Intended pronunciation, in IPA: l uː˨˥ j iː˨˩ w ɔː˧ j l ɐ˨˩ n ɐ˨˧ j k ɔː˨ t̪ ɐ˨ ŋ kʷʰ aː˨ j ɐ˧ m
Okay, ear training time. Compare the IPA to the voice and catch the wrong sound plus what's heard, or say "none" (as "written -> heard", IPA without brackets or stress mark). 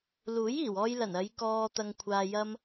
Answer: none